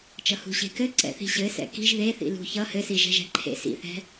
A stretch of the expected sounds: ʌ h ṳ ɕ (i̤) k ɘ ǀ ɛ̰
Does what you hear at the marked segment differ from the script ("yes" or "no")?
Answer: yes